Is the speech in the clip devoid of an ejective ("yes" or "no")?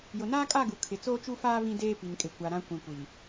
no